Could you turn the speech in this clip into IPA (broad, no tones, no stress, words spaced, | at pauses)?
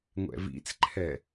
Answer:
ŋʷɛ̰vḭt͡sǃʰɛ